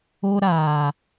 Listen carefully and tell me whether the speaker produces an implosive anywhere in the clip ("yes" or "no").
no